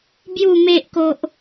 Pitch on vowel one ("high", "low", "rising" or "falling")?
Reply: low